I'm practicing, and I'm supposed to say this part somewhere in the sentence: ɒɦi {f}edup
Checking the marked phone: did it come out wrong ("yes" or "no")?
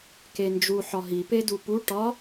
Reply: yes